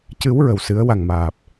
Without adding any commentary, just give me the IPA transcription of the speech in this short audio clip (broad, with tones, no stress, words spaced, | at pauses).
cɨ˨˩˦w ɹə˨˩wsɨ˨˩˦ə̯ wa˨˩ŋmaː˨˩p̚